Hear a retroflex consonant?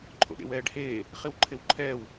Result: yes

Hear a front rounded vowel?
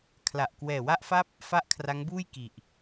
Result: no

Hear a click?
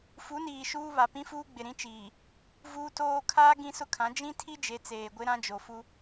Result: no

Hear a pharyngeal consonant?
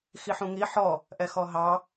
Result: yes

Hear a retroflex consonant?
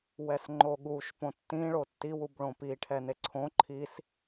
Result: yes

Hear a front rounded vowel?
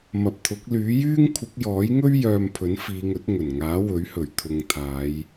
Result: yes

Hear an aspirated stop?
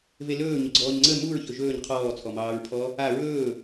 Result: yes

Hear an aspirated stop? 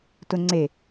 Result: no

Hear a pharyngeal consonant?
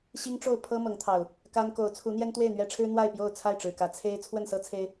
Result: no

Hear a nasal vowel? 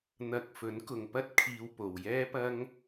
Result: no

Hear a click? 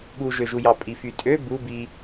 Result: no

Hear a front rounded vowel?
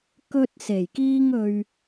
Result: no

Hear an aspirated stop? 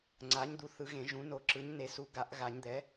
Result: no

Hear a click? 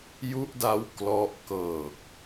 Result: no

